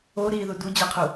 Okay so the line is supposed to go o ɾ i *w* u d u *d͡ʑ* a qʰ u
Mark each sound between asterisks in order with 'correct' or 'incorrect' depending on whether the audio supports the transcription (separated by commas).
incorrect, correct